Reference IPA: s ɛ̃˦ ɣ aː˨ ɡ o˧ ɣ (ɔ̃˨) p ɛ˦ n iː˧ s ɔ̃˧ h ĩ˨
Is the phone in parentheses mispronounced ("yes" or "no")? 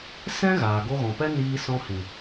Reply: no